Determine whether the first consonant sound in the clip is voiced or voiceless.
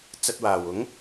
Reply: voiceless